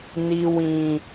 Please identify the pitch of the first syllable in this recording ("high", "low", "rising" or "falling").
low